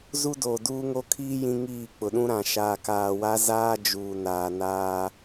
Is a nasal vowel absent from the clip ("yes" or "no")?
no